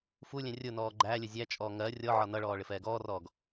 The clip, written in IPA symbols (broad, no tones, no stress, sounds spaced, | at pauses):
f u lʲ ɛ̃ rʲ ʊ n ɔː ɡ͡ǃ æ lʲ ə zʲ æ t͡ʃʼ ɔː ŋ ɜ rʲ ɔ ʕ ɒ n ʌ ɭ ɔː ɭ ɪ f ɛː ɡ ɔː r ɔː ɡ